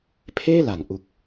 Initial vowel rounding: unrounded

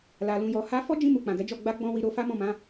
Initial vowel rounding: unrounded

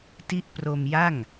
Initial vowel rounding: unrounded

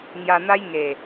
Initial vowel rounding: unrounded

